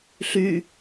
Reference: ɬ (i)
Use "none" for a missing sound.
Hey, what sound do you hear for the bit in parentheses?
y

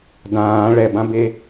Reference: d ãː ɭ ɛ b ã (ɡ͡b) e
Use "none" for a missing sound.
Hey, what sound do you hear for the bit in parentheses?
b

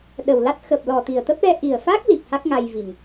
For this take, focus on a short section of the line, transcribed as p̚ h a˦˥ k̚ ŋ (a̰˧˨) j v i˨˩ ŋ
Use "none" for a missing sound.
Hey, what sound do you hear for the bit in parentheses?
a˧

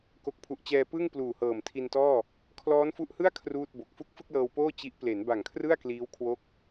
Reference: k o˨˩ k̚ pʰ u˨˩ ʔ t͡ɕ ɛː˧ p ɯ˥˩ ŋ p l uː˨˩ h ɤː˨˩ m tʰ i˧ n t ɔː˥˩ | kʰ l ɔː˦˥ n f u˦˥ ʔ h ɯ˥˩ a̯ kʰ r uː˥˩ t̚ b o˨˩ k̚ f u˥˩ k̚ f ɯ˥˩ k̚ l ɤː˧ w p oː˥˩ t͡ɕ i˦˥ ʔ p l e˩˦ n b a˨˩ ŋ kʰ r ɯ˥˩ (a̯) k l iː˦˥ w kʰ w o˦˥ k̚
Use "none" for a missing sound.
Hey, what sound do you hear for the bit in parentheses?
a̯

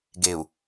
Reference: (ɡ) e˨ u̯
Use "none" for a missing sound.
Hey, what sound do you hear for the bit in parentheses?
ɡ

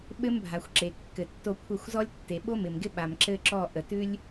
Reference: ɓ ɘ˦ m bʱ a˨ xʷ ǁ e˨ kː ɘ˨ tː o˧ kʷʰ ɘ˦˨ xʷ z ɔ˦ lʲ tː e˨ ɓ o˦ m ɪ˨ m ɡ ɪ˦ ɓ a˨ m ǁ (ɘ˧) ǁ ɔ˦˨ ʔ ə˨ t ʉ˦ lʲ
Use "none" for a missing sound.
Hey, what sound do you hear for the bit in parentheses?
ɘ˦˨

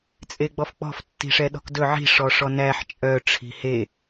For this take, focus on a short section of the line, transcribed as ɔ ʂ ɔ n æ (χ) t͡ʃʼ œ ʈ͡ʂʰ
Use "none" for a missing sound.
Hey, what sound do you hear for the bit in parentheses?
ħ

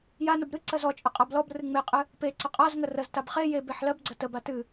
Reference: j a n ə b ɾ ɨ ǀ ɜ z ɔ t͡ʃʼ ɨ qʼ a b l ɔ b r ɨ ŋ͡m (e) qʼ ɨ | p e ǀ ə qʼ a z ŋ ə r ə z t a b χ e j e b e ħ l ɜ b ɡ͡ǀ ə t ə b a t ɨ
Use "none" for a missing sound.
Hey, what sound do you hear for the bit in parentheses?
e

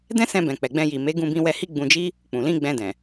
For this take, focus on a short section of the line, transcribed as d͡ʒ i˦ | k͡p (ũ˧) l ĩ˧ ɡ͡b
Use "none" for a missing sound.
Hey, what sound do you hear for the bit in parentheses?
ũ˨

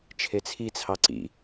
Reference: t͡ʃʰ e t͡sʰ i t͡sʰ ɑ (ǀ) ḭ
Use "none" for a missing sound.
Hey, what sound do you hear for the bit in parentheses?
ǀ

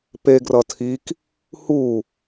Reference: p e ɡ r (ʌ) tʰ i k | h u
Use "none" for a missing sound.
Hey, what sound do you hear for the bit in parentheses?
ʌ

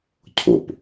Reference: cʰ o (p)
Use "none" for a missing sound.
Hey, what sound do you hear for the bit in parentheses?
p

